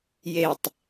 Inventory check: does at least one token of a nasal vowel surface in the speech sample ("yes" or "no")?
no